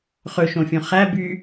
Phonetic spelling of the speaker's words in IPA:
χɵʃõfʲõ χæ by

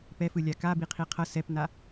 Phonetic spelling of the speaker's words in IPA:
pɛfɯlʲa kabi qʰiqʰʌ sɛpna

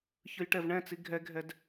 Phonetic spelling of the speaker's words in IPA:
çɯjʈɛvɳɛ̃t͡si ɡʱɛɡʱɛd

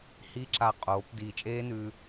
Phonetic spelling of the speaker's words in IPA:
hi˦ǁa˧ qʼoː˨˦p diː˨t͡ʃʼeː˦nʉ˧

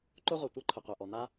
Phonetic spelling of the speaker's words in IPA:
ǃʊ˥ʁʷɤ˩ tʷi˥ǃʰʊ˩qʷɛ˩ ʔɔ˩n̪a˥

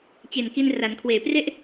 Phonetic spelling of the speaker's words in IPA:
t͡ɕe˨˩nki˧n ra˩˦nkʰweː˨˩pre˥˩ʔ

